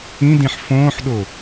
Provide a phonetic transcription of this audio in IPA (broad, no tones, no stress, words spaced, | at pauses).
ĩdĩħ fõːħɗo